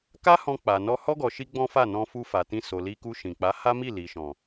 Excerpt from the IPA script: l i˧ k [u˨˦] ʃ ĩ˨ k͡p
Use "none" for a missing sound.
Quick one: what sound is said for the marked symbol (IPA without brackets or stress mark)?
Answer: u˧